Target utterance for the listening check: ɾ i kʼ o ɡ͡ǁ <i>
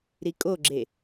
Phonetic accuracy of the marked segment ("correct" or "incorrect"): incorrect